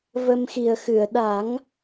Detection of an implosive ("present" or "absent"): present